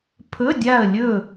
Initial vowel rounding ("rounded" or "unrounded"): rounded